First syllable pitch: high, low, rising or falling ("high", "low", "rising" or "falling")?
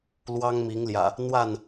high